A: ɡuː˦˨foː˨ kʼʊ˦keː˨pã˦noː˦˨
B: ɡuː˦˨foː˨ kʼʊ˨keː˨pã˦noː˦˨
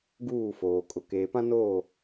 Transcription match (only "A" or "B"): B